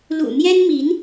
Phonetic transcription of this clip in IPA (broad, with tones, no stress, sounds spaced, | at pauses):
l ṵ˨˩ n̪ j ɛ˥ n m i˧˥ n